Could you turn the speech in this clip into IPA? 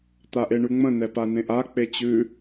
t̪aʔeɳʉŋ͡mə̃ nɛpanẽʔa k͡pet͡ɕʉ

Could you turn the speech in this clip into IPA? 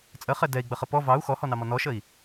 t͡sʼəχɛ dɛi̯ɡ͡bəχə pɔ vɑu̯ xɔhɔnɑmɔ nɔʃəi̯

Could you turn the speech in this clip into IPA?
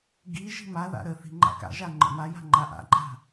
ɡi ʒi̤maða̰ ɾə θi̤ŋ͡ǃa̰ka̰ʒa ŋ͡ǃə̰maja̤ ŋ͡ǃaʔa̰ǃʼa̤

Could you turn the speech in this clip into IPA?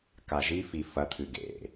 kaʒifi fɐt̪ʰɨ ɡḛ

